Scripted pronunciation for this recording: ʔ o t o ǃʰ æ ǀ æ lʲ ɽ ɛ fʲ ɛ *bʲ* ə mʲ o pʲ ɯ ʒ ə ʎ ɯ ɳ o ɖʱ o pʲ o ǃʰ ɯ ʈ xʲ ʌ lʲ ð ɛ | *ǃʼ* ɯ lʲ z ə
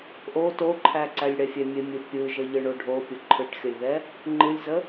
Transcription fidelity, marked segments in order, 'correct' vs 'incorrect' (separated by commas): incorrect, incorrect